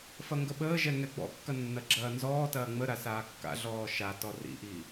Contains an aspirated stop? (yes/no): no